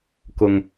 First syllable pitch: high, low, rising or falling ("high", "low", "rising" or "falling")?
low